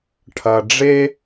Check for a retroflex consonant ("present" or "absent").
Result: present